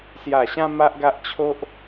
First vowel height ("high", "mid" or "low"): low